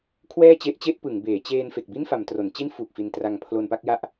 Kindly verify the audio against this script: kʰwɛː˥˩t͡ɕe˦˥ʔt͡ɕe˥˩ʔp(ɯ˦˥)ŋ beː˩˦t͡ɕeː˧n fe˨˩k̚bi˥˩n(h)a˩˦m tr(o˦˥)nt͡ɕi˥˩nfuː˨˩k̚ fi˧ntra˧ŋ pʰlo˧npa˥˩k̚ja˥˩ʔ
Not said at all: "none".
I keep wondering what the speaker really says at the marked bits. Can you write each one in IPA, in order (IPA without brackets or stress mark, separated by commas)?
ɯ˩˦, f, o˩˦